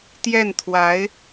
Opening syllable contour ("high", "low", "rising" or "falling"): falling